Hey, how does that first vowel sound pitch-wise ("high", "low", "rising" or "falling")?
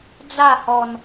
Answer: falling